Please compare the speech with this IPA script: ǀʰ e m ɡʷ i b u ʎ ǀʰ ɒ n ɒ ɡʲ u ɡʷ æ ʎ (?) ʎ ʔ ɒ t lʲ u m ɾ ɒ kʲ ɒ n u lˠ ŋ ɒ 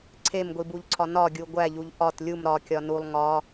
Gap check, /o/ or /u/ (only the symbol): u